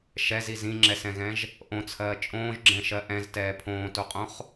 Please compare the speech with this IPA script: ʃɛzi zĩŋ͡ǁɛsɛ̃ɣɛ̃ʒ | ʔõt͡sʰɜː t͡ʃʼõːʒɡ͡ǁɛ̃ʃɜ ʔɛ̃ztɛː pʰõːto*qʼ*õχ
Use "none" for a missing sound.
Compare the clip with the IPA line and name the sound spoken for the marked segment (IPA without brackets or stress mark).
qʼ